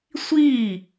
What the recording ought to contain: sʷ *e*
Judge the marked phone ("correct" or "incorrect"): incorrect